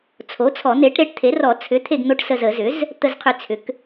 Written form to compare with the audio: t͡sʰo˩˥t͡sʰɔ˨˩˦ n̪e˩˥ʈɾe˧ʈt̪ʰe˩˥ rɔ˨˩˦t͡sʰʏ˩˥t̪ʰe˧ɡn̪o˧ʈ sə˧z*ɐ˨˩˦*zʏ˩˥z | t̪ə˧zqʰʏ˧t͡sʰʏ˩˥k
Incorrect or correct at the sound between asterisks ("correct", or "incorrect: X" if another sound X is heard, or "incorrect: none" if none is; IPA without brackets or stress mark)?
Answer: incorrect: ə˨˩˦